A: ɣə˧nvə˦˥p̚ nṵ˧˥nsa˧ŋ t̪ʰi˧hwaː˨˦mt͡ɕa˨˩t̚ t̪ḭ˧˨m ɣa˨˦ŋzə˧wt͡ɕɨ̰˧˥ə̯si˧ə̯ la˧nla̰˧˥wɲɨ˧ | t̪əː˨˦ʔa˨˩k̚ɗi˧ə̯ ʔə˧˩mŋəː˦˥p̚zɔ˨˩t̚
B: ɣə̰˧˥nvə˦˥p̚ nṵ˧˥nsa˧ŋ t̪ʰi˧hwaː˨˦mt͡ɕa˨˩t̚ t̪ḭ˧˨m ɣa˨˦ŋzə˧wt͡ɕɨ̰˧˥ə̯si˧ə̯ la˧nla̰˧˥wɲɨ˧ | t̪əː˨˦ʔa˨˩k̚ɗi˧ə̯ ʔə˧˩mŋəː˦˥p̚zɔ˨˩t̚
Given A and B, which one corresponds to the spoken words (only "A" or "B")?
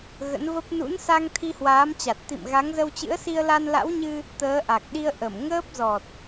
B